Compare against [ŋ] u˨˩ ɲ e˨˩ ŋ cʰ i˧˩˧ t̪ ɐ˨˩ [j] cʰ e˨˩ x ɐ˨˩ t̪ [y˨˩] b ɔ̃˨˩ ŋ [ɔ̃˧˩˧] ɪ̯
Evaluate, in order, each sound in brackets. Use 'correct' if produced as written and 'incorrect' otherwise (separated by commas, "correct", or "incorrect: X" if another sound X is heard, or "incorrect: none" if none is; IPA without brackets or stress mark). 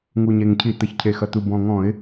correct, incorrect: ç, incorrect: u˨˩, correct